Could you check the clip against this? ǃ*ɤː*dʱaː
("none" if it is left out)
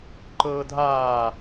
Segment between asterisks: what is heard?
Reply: ɤː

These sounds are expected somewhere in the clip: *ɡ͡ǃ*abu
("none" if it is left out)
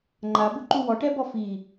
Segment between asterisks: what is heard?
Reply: ŋ͡ǃ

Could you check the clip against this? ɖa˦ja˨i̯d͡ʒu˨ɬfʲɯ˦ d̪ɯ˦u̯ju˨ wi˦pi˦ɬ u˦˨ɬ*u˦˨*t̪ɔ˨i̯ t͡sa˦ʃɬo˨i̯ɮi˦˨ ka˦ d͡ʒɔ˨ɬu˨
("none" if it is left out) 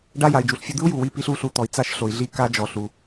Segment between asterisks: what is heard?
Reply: u˦˨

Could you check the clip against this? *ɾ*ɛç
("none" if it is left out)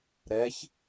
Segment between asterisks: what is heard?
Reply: ɾ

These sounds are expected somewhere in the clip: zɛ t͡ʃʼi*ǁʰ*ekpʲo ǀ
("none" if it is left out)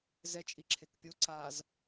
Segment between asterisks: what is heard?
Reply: ǁʰ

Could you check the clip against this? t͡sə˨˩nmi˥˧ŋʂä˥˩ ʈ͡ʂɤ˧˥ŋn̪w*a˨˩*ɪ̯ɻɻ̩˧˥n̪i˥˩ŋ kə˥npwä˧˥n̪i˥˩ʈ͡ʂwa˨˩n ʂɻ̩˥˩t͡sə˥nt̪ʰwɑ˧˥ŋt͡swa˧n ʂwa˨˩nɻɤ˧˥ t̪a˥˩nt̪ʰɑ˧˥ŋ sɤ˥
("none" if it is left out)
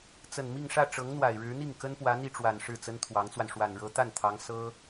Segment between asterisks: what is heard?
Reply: a˨˩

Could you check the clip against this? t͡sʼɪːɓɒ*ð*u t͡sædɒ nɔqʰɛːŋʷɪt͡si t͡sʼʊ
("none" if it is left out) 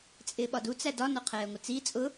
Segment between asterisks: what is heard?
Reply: d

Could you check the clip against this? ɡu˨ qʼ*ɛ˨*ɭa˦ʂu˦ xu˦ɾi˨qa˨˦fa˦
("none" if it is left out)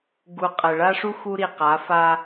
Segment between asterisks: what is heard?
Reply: ɛ˨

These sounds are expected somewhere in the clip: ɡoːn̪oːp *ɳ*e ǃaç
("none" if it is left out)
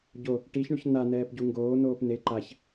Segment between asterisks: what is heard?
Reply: n̪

